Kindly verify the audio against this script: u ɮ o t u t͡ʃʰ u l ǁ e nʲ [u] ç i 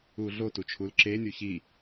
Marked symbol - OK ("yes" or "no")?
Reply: yes